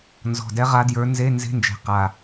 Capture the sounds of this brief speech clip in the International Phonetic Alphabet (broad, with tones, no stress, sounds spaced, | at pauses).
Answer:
n z ɔ̤˨˩ d ɛ˧˥ ʁ a˧˥ d j ə˞˧˥ n z e˧˥˧ n z e̤˧˥˧ n d͡ʒ e̤˨˩ q a˨˩